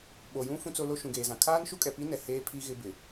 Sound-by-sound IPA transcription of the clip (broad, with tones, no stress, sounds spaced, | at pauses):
ɓ o˨ j ũ˦ f ũ˦ t͡s o˦ l o˦ ʃ ũ˨ ɡ eː˨ z ã˨ kʰ aː˦ n ʃ u˦ kʼ ɛ˨ p i˦ n ɛ˨ h eː˦ pʰ i˦ ɣ ɪ˦ b ɪ˨